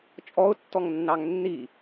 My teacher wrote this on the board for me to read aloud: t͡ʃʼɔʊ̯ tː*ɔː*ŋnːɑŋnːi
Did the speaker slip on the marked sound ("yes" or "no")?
yes